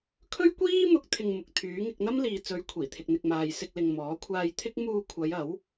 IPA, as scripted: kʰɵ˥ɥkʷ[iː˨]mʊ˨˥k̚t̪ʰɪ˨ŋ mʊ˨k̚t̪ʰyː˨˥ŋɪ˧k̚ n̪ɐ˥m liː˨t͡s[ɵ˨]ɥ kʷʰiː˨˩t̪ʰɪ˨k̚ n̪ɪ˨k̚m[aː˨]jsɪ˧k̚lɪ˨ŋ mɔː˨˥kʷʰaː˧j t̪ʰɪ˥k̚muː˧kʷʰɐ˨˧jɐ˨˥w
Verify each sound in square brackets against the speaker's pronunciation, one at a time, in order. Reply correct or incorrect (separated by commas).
incorrect, incorrect, correct